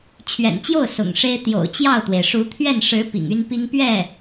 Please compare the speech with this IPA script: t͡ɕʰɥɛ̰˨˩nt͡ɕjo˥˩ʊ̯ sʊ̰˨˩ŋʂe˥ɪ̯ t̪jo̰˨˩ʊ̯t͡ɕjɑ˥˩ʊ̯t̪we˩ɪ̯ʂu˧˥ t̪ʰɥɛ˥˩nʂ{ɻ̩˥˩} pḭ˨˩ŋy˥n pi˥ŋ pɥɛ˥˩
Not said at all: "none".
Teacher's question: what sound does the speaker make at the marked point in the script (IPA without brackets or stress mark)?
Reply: ɻ̩˧˥